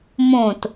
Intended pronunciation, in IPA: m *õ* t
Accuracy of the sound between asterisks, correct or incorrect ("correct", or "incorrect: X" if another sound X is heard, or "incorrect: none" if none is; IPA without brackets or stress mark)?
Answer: correct